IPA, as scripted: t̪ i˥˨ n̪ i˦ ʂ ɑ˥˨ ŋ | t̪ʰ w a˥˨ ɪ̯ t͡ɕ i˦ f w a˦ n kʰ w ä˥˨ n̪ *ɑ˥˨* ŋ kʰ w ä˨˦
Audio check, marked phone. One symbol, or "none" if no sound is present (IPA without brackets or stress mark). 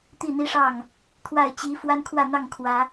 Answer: ɑ˥˨